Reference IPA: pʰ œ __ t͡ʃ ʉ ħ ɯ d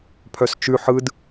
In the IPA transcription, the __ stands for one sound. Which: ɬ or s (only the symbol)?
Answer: s